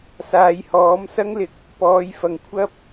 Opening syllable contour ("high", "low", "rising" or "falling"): low